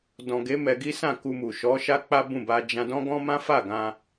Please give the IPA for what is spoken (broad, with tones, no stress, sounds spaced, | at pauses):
d ɔ̃˨ ɡ e˨˦ m ɛ˧ ɡ i˦ s ã˦˨ k u˧ m u˨ ʃ ɔ˨˦ ʃ a˦ k͡p a˦ b ũ˦˨ b a˧ d͡ʒ ã˧ d ɔ̃˦ ɡ ɔ̃˦ m ã˦ f a˦˨ ɡ ã˧